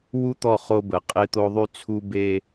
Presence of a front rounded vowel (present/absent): present